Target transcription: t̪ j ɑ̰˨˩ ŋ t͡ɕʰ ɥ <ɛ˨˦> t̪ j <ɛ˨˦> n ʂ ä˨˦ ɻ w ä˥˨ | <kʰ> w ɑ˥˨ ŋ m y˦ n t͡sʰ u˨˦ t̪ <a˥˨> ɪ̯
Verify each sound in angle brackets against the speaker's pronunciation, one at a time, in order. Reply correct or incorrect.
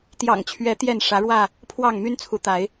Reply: correct, incorrect: ɛ˥˨, incorrect: pʰ, incorrect: a˨˦

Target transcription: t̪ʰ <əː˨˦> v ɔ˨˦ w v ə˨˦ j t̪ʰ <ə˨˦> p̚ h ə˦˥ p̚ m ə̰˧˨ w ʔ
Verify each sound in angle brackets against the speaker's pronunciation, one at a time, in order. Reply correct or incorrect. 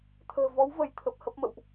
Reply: incorrect: ə̤ː˨˩, incorrect: ə˨˩

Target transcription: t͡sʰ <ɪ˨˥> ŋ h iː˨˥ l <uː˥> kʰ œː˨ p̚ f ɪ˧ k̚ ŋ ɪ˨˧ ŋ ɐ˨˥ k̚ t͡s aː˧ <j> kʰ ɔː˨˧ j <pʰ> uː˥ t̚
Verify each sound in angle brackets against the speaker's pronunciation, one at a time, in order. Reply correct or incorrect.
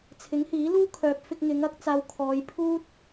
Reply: correct, correct, incorrect: w, correct

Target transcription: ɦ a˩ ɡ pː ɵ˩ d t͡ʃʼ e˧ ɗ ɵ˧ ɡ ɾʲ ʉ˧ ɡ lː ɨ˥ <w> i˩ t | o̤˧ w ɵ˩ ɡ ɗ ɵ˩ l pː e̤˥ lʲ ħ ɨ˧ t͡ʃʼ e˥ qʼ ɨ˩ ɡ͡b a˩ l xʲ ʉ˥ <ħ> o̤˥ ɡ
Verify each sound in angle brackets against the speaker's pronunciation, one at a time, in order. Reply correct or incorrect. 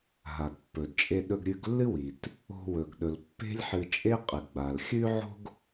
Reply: correct, incorrect: ʕ

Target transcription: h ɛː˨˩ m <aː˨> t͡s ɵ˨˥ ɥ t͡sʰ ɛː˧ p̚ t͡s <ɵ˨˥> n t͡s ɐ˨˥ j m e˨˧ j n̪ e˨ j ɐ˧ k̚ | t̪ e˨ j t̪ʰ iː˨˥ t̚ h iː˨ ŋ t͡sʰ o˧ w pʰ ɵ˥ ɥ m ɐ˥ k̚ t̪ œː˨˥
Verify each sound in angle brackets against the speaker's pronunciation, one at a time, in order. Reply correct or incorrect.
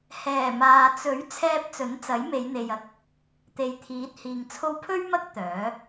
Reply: correct, correct

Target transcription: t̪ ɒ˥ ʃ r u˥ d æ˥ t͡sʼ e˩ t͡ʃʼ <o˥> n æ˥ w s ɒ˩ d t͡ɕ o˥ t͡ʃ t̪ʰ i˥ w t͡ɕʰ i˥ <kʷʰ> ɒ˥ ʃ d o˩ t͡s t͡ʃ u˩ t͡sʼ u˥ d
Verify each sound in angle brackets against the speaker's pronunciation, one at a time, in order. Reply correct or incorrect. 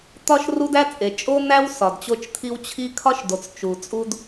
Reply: correct, incorrect: kʰ

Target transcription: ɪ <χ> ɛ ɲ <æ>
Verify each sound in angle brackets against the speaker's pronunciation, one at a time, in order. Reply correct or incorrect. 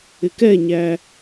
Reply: incorrect: k, correct

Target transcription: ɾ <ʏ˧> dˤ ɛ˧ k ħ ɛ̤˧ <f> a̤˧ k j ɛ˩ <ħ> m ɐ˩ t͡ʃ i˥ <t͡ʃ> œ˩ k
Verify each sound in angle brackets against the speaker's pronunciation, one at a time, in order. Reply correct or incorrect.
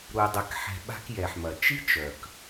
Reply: incorrect: u˧, incorrect: ɓ, correct, correct

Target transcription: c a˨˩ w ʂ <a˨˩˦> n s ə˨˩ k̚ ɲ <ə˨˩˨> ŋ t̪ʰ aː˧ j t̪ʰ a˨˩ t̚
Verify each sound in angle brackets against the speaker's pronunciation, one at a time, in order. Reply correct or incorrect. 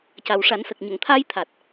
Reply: correct, correct

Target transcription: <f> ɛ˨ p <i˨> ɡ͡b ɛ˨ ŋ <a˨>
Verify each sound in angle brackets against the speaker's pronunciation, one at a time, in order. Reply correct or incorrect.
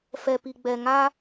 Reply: correct, correct, incorrect: a˦

